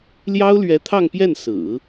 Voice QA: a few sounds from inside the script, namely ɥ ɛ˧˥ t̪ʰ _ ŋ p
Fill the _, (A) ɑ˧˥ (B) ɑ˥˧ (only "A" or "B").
B